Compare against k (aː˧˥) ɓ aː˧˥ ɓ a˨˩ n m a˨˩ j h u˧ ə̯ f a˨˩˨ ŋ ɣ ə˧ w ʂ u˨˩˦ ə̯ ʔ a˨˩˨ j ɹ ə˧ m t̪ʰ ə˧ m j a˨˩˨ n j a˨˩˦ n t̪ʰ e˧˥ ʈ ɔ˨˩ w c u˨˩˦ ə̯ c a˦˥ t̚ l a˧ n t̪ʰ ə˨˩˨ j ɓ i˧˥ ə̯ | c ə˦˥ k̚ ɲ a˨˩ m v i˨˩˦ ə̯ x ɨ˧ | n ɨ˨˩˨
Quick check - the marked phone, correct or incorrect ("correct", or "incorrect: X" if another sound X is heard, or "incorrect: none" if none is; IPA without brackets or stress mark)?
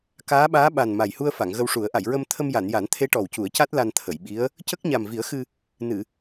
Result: correct